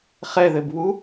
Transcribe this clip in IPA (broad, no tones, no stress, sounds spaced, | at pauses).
χ ɛ ð ɘ b β u